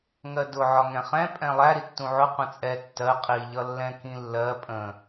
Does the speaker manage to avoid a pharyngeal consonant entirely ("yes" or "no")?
no